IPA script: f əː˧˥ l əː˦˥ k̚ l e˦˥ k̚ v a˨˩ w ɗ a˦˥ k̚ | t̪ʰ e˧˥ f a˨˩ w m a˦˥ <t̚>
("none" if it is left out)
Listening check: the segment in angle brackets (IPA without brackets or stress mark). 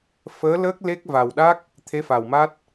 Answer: t̚